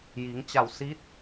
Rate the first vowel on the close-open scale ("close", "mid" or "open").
close